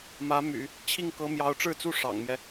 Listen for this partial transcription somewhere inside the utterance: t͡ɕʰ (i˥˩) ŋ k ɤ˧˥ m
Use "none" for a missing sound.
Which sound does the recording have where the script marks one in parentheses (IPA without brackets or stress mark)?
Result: i˥˩